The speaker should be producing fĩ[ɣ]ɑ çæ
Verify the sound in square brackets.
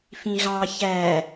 correct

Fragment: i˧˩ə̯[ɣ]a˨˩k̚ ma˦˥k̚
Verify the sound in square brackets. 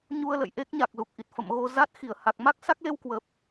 incorrect: h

